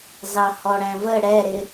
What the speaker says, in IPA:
z ɑ h ɔ ɽ æ̃ v ə ɽ ɛ ɾ ɪ

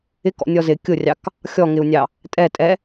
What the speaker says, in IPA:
ɪ k ɔ̰ nʲ ɔ z ɪ kʲ ʊ rʲ ɑ k | xʲ ɔ ŋ ɪ u̯ nʲ ɑ | tʼ ɛ tʼ ɛ

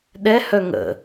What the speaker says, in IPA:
ɗ ɛ h œ ŋ ə̰

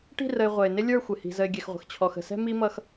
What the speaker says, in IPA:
ʈ i̤˦˨ r ə˨ ɪ̯ ʁʷ ɛ˨ ɪ̯ n ɪ˦ lʲ ə˞˦˨ xʷ ɪ˨ h i̤˨ z ə˨ ɪ̯ ɡʲ ɛ˨ x ʁʷ ə̤˨ x t͡ɕʰ ɔ˨ x ə̤˨ s ɛ̤˦ m i˦ m ʌ˦ x

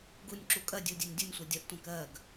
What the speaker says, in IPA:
ɡ u nʲ ǁ u kʼ ɜ dʲ u dʲ ɜ nʲ dʲ u nʲ sʷ ɜ dʲ ʌ ʔ tʷ æ̃ k ɜ ɡ

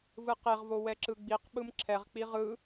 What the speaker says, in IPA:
v ɯ q e ʁ v o w ɛ ǁ ɯ ɡ͡b i q ɓ ɯ m ǁʰ ɛ ʁ k͡p i ʁ ɯ

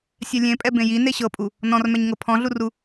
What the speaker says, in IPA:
sʲ ɛ lʲ ẽ pʼ ɛ b ẽ j i n e ɕ ɤ pʼ u | n ɔ̃ r m ɛ ɲ ŋ ɤ pʰ ɔ̃ ɮ u r u

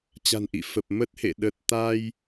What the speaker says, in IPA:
t͡ɕ a̤˨˩ n ʔ ḭ˧˨ f ə˨˩ p̚ m ə˦˥ t̚ h ḛ˧˨ ɗ ə˨˩ t̚ t̪ a˧ j

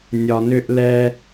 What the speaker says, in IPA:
nʲ ɒ˨ n ʏ˧ ʔ l ɛ˧

